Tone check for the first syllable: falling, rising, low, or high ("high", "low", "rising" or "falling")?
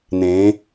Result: rising